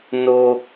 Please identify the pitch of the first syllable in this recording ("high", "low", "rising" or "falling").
high